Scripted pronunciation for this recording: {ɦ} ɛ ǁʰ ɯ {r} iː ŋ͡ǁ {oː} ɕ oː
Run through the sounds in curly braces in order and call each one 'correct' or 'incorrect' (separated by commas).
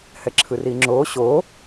incorrect, correct, correct